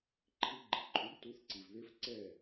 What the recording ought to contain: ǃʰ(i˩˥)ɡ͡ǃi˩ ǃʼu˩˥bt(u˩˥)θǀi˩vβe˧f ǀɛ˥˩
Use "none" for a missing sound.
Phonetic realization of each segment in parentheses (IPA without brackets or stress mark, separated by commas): i˧, u˩˥